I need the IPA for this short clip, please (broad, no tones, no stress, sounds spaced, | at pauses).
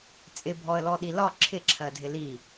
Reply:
t͡sʼ ɪ bʱ ɔ ə̯ l ɔ ɗ i l ɒ ǁʰ ɪ ǁʰ ɜ dʱ ɪ l i